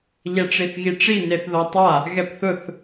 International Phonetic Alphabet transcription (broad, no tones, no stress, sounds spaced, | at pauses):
ʎ ɛ ʈ͡ʂ i θ ɣ i ʈ͡ʂ i n e θ ð ɔ tˤ a | ɣ ɛ p θ ʊ θ